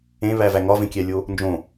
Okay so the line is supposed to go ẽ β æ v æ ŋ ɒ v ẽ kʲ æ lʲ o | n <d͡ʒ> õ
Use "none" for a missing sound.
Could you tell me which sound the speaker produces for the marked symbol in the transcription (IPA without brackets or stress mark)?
d͡ʒ